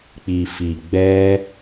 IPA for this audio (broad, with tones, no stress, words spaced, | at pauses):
k͡pi˨fi˨ ɡ͡bɛ˦